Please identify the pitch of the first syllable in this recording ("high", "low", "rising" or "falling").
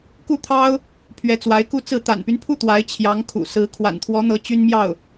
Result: falling